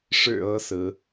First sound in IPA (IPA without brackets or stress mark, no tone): ʂ